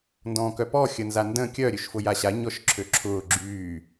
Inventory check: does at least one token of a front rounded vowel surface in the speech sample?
yes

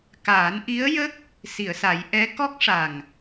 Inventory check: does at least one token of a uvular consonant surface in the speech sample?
no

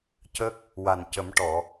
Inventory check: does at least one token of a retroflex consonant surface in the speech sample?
yes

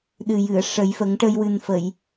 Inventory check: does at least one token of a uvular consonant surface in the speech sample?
no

